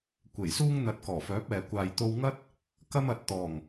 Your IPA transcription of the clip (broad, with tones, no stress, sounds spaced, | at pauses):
kʷ e˨˩ j s uː˥ ŋ n̪ ɐ˨˥ t̚ k ɔː˨˩ f œː˨˥ p̚ ɛː˨ kʷ aː˧ j t̪ o˥ w ŋ ɐ˥ t̚ | k ɐ˥ m ɐ˨ t̚ t̪ ɔː˨˩ ŋ